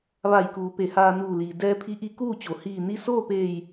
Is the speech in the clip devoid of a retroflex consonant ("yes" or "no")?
yes